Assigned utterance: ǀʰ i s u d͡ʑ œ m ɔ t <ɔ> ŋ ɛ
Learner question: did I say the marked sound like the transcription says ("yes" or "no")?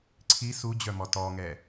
yes